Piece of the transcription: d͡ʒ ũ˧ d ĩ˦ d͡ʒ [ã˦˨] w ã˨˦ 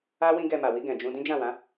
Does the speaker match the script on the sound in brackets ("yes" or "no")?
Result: yes